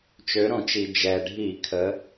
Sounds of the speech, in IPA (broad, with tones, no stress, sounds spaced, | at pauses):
t͡ʃ ø˩˧ ɾ õ˧˩˧ t͡ʃ i˩ d͡ʒ ɛ˩ ɖʱ i˧˩˧ kʰ ə˩˧